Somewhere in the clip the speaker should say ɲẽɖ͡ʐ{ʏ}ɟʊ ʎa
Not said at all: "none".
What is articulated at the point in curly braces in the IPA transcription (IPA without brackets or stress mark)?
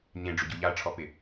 ʏ